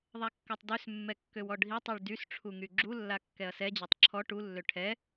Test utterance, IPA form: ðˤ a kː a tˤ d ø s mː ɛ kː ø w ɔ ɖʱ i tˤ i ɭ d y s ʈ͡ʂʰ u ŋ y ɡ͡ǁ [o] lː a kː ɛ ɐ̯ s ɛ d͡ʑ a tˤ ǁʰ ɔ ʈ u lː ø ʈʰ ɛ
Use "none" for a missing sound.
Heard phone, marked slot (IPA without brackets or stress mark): u